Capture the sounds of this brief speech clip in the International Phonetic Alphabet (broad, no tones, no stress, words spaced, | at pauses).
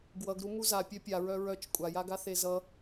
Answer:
ɡwʌɡ ɾumuza pʲœpʲaɹœ ɹœt͡ʃ kʷʼajaɡa θezʌ